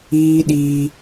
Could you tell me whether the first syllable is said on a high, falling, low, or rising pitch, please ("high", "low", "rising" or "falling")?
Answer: high